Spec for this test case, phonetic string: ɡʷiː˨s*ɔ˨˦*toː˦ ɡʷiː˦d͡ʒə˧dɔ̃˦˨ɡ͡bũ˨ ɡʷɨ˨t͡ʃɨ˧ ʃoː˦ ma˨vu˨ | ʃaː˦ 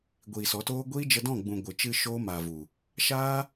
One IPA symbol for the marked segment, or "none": ɔ˨˦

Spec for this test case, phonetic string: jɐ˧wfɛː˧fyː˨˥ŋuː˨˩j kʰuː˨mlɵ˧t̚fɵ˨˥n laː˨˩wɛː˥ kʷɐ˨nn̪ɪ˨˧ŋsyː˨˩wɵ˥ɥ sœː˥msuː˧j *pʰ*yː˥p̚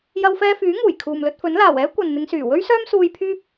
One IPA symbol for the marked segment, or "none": pʰ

